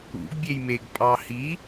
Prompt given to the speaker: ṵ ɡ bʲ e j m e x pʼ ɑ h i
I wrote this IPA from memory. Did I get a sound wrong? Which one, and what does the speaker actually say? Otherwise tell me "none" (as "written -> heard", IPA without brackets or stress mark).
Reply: x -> ɡ